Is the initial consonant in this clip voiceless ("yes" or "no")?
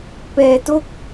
yes